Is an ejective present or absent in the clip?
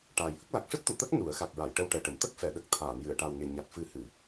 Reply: absent